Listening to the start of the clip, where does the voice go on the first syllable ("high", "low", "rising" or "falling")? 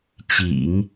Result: low